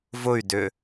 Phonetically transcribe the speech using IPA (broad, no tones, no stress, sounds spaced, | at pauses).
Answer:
v ʊ y̯ d ʏ